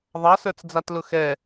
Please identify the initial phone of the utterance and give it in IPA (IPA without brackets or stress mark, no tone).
ðˤ